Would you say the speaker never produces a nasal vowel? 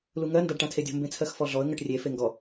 no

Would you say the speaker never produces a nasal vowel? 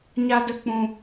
no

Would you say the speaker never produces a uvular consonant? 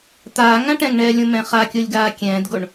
no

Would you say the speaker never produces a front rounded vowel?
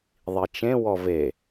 yes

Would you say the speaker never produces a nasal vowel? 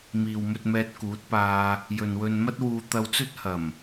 yes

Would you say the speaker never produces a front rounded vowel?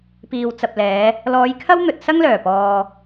no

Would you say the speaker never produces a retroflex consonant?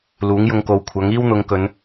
yes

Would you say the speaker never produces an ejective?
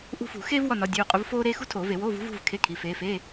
no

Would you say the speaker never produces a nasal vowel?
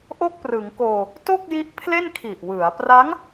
yes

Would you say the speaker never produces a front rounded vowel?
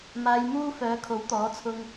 no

